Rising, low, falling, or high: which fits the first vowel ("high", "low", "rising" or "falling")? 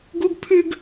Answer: high